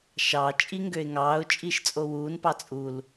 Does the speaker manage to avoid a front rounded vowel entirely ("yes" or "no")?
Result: no